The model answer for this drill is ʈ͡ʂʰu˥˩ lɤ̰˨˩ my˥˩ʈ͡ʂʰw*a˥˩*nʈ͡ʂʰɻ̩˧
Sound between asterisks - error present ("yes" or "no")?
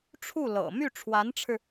yes